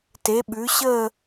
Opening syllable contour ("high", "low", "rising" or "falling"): rising